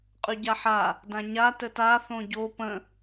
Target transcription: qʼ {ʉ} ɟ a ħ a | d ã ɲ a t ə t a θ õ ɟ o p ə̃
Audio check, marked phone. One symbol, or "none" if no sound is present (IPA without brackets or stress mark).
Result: ʉ